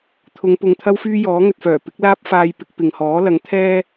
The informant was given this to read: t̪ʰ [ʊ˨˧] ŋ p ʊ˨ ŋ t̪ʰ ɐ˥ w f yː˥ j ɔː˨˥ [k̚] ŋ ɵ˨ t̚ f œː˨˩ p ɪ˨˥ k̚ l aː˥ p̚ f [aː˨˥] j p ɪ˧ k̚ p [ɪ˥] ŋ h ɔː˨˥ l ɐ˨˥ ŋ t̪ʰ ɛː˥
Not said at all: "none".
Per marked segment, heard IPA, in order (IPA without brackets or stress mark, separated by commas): ʊ˨˧, none, aː˧, ɪ˨